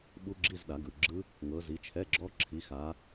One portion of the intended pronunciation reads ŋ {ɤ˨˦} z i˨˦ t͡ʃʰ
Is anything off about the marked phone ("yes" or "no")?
no